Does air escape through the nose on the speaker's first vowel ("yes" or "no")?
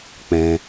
yes